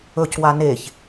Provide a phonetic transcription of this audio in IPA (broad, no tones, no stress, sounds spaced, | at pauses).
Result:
ɵ c w a n e ç